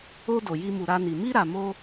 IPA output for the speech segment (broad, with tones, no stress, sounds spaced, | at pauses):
o˧ d o˨ j i˧ m u˨ ɾ a˧ n i˨ m i˧ ɾ a˨ m o˧